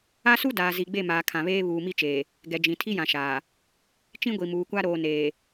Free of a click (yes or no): yes